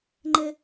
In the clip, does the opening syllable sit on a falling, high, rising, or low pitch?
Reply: high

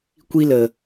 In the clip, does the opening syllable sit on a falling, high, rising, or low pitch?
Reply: high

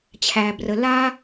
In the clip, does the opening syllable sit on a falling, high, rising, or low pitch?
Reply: low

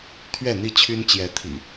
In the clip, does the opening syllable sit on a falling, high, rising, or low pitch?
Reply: falling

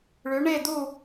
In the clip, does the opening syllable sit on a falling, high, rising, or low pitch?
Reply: rising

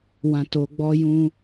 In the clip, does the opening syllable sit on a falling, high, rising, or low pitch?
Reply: low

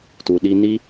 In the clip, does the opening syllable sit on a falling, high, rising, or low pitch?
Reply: low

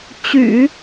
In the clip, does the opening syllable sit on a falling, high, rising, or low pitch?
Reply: low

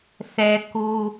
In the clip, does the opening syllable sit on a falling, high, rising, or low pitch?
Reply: high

